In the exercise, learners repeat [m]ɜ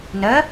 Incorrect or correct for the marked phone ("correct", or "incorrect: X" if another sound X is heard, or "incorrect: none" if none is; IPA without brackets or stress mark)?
incorrect: n